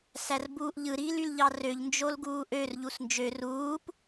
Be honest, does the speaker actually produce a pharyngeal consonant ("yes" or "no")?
no